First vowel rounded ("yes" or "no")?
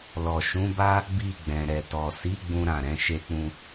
yes